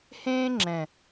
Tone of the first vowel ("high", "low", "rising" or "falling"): high